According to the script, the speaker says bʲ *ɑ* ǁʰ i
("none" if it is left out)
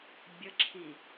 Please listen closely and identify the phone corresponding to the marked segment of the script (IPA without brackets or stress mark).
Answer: ə